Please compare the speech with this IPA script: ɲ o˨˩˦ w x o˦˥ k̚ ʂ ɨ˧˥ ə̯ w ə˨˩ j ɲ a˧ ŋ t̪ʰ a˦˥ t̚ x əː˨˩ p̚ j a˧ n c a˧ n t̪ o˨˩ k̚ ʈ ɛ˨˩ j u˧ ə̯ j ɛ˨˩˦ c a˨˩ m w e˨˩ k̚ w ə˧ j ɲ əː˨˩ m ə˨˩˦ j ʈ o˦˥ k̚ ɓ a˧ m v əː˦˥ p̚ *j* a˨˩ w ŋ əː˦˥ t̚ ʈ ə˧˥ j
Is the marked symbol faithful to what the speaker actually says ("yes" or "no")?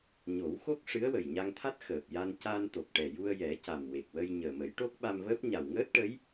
no